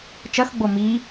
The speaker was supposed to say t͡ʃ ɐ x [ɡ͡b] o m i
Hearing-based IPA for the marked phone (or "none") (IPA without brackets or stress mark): ɡ͡b